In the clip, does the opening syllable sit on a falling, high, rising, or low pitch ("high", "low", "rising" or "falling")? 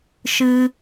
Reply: high